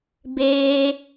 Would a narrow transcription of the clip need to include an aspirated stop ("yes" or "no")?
no